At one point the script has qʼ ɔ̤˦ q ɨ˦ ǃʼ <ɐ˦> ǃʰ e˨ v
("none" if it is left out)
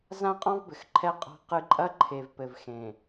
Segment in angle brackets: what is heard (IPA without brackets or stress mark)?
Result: ɐ˦